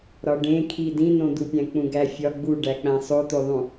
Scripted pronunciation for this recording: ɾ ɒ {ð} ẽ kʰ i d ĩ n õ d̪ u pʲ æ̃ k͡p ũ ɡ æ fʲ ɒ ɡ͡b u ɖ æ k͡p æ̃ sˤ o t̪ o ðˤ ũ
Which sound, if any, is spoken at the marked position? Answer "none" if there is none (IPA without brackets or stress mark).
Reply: ɖ